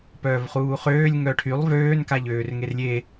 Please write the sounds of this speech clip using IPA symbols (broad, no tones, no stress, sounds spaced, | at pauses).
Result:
p œː v χ uː χ øː lʲ ŋ œ ʈʰ y lˠ v øː n k a ʎ øː r ŋ e r lʲ e